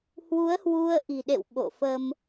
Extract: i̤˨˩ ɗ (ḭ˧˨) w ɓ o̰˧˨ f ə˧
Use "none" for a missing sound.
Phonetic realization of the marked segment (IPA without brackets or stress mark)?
ḛ˧˨